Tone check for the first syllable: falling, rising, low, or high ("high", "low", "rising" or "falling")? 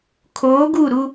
rising